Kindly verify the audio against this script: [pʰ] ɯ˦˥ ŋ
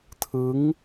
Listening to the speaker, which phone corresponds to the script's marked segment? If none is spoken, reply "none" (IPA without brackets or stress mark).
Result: tʰ